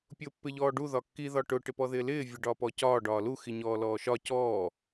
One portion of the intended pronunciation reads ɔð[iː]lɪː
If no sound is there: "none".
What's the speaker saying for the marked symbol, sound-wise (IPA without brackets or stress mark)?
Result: ɪː